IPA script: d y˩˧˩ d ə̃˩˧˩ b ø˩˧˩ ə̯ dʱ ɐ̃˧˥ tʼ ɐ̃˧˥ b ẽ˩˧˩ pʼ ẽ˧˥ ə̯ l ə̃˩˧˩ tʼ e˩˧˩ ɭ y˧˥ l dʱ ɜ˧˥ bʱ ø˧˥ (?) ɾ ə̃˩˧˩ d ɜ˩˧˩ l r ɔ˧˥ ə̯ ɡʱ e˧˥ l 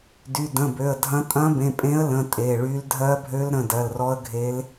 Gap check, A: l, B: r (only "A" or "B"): A